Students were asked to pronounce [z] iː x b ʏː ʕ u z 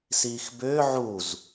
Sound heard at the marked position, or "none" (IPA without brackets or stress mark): s